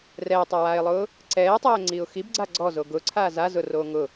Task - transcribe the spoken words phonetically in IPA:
r ɛː tˤ a w aː ɪ̯ lˠ ʊː | ǀ ɛː tˤ ɛː ŋ͡ǀ iː ʊ̯ x i b ɡ͡ǀ a ɡ͡ǀ ɔ z o ɡ ʊ ǀʰ aː z a z ʊ r oː ŋ ʊ

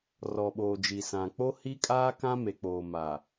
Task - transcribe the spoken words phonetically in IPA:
r ɔ˨ ɓ oː˨ d͡ʒ i˨ s ã˨ k͡p o˦ h i˦ kʼ aː˦ k ã˦ m e˨ k͡p oː˨ m a˨

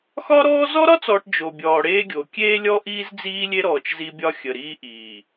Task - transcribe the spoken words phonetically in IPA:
x ɒ˦ ɾ ɔː˦ z ɔ˦ ɾ ɒ˦ t͡s ɔː˨ ʈ d͡ʒ o˨ bʲ ɔː˨ ɽ eː˦ ɡʲ o˨ kʲ eː˦ lʲ ɔ˦ ʔ iː˦ z d͡z iː˦ lʲ e˦ ɾ ɔː˨ t͡ʃ z i˦ bʲ ɒ˦ xʲ ə˨ ɾ iː˦ ʔ iː˨

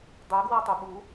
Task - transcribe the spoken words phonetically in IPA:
dˤ ɜ ɡ w a tˤ ʊ ɓ u

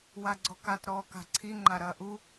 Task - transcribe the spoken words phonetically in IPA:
w a ɡ͡ǀ ɔ k a t ɾ ɔː k a̤ ǀʰ i ŋ͡ǃ a ɾ ɐː ʔ u

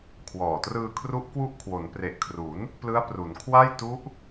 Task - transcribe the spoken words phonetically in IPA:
kʰ w ɔː˨˩ t r ɯː˧ kʰ r u˦˥ ʔ k w u˦˥ ʔ kʰ w o˩˦ n p r e˨˩ ʔ kʰ r u˩˦ n | p l ɯ˦˥ a̯ p r u˩˦ n kʰ w a˥˩ j t u˦˥ ʔ

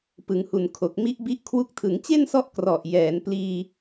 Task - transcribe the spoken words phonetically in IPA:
p ɯ˩˦ ŋ h u˨˩ n kʰ o˨˩ k̚ m i˦˥ ʔ b i˦˥ ʔ kʰ w u˦˥ k̚ tʰ ɯ˩˦ ŋ t͡ɕ e˥˩ n s ɔ˦˥ ʔ k r ɔ˨˩ ʔ j ɛː˩˦ n p l iː˧

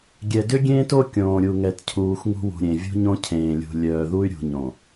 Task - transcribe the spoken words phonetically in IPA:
ɡʲ ɛ˨ d ʏ˦ ɡʲ ẽː˦ t o˦ kʲ õː˨ ɾʲ u˨ ŋ ɛ˨ t cʰ uː˨ x ŋ ṳ˦ w ṳ˨ ɾʲ ẽ˨ vʲ ṳ˦ ɲ õ˦ cʰ ẽː˨ lʲ ṳ˨ lʲ œː˨ ð u˦ y̯ ɾʲ ṳ˨ ɲ õ˨

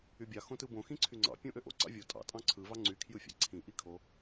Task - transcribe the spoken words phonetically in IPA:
y bʲ ɑ x õ t ɯ b õ x ĩ ǀʰ y ŋ͡ǀ ɑ̰ pʲ õ ʔ ø ʔ o̰ ǀ ɑ̰ vʲ o tʼ ɑ̰ tʼ ɑ̃ ǀʰ ɯ v ɑ ŋ͡ǀ y kʰ j ɯ fʲ æ̰ ǀʰ ĩ ʔ i kʰ o

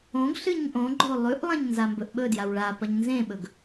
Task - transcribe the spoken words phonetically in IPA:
õ ɡ ɬ ɨ ɲ ʔ õ ɡ͡ǃ o lˠ ʉ ʔ lˠ ɐ̃ ɲ n z a m b ɵ ʔ ɓ ɵ d j a w ɭ a p ɐ ɲ n z ẽ ɓ ɵ ɡ

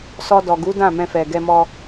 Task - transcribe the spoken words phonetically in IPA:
s ɔ˧ d ɔ˨ ɡ u˨˦ d ã˦˨ m ɛ̃˧ f ɛ˨ ɡ ɛ˧ m ɔ˧

